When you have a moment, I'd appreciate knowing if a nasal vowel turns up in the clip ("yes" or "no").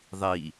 no